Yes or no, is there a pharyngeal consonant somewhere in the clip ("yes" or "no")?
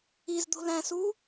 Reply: no